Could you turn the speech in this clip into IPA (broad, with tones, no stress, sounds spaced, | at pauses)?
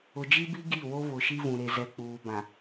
ʊ˨ d͡ʒ i˦ b i˦ ɡ i˦˨ w o˦ β ʊ˨ ʃ i˦ v ũ˨ ɾ e˨ z ɛ˨ k͡p uː˨ b ã˨